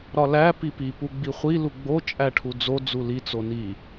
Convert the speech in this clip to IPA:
ɾɒlæ pipi puɡ͡biχʷi luɡ͡bo t͡ʃʼæʈʰud͡zo d͡zuli t͡soni

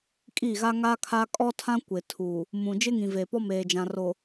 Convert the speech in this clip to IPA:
kʼi˦˨ɣa˦ ŋa˦kʰa˦ kʼɔ˦tʰã˦ kʷɪ˨ tʰuː˨ | mũ˨ d͡ʒɪ˦ŋĩ˨veː˨pɔ˦ meː˨d͡ʒã˨ ro˨

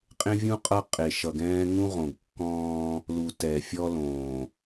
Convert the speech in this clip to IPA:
qʼẽ˦vʲũ˦ qʼʌ˦ qʼe˨ʃʌ˨ɡɛ̃ː˦ ŋũ˦ʁõ˨ɡkːɔ̃ː˦ | lu˨ tɛ˨fʲɔ˦ lõː˨

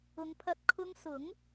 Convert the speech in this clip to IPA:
ʊ˨˧ŋpʰɐ˧t̚ kʰʊ˧ŋ sʊ˨˥ŋ

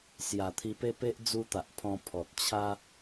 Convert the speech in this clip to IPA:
sja˨˩t̪ʰi˧pe˦pe˦ʔ d͡zu˦t̪a˨ʔpʰɔ̃˧ pʰɔ˨t̚ t͡ɕʰa˦

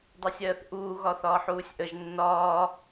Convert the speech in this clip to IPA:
dˤɜsʲɜːθʔuː ɣɒθɒːħuːsʲʔəʒ nːɒː

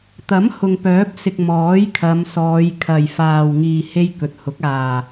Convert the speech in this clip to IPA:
t̪ɐ˨˥m hʊ˨ŋpœː˨˥p̚sɪ˨k̚ mɔː˨˥jkʰɐ˨˧msɔː˨˧jkʰɐ˨j faː˨wŋiː˨ he˥jkɵ˨t̚hʊ˨˥k̚ aː˨˩

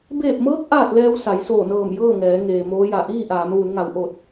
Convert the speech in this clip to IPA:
beː˧˩p̚mɤː˧˥k̚ ʔaː˥˨t̚lɛː˧w sa˩˧jsoː˧˩nɤː˧˩m jɤː˥˨ŋɛː˩˧ ŋeː˩moː˧˥ja˧˩ ʔiː˥˨ʔaː˩˧mʋu˩˧nŋa˩˧w ʔo˧˩t̚

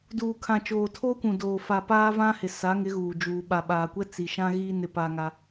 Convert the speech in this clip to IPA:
duː˨kʰã˨t͡ʃoː˨ tʰoː˦kʷũ˨doː˨ fa˨ paː˦vã˦hɪ˨ sa˨˦ŋɪ˨˦ ɣuː˨d͡ʒuː˨ ɓa˨ɓaː˨kʷɛ˦ t͡si˨ʃã˦ ɣiː˦ nɪ˦pa˦ŋa˦

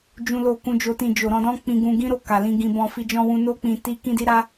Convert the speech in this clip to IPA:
d͡ʒũ˦lo˦˨ kũ˧d͡ʒo˧tĩ˧ d͡ʒo˨ɾɔ̃˧dɔ̃˦ k͡pĩ˧ɡũ˧ɡĩ˦ɾo˦˨ ka˨lĩ˧ɡĩ˧bɔ̃˧ fi˧d͡ʒɔ̃˧wũ˧ no˦k͡pĩ˧ ti˦kĩ˦ di˦ɾa˦

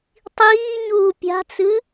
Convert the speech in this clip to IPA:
tˤiː ɲuːpʲa̤t͡sɨ

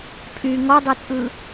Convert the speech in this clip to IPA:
pʼy ŋɔdˤə˞t͡sʼɯ

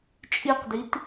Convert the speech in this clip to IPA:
t͡ʃʼiqdit

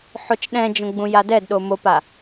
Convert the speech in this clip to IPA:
ħot͡ʃɗɛ̃d͡ʒõ ɡ͡bũjadɛdɗo mopa

